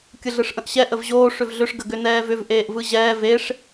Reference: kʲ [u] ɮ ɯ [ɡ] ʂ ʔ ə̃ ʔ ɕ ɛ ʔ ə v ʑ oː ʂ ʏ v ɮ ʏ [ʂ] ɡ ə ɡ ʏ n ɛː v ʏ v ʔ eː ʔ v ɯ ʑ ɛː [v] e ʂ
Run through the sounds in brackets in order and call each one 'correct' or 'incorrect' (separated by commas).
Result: incorrect, incorrect, correct, correct